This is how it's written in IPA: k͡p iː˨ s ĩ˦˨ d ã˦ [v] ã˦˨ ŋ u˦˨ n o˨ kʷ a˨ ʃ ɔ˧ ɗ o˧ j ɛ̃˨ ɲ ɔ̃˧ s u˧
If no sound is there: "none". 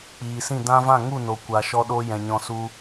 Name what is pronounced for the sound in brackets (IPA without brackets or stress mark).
v